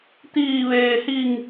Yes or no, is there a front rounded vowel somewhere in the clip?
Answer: no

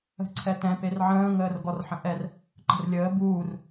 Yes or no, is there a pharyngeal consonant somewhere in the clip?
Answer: yes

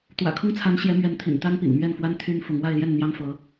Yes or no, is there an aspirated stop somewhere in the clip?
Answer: yes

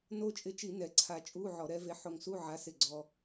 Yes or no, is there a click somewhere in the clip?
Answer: yes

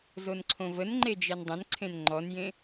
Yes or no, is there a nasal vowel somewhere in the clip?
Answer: yes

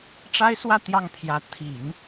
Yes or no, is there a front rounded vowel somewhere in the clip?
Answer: no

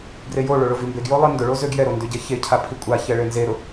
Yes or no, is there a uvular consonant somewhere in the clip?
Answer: no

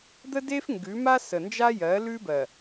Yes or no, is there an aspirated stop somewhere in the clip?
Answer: no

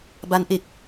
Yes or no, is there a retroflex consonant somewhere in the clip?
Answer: no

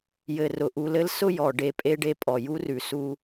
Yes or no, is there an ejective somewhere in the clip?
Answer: yes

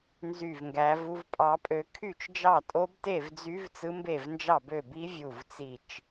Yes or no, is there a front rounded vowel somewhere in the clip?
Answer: yes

